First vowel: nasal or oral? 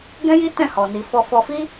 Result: nasal